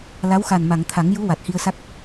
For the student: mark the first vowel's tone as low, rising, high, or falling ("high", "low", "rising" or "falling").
rising